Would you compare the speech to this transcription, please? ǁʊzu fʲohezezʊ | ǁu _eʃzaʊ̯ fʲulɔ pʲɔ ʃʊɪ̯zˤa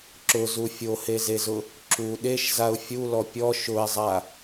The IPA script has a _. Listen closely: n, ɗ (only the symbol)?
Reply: ɗ